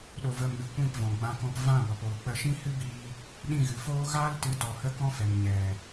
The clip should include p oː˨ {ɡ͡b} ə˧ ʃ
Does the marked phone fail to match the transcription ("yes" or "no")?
yes